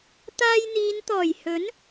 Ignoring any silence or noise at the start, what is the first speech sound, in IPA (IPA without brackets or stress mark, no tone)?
t̪